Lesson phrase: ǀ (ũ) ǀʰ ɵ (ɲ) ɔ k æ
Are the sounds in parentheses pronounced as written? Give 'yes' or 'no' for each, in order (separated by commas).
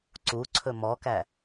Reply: no, no